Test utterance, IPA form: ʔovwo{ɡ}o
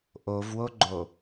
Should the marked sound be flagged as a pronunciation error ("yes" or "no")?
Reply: yes